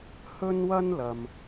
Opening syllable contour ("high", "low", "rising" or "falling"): high